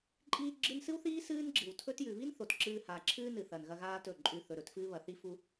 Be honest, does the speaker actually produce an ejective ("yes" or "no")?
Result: yes